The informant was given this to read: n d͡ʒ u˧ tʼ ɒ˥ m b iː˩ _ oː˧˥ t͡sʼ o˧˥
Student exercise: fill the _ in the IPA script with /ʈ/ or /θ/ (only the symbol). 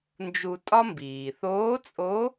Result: θ